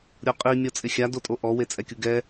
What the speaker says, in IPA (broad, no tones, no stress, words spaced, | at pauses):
ɾʲoqʼi mʲɔt͡sʼɪxʲa dotʼoʔɔ wet͡sʼɛkʲuɡɛ